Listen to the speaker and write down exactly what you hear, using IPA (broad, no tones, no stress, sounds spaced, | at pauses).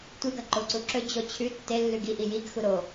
tʷ ɨ ɡ ɐ ǃ o ǀ u ǁ ɵ d͡ʑ o t͡ɕʰ ʉ tː e lː ʉ ɡ i ʔ i j i ɡ x u ɾ o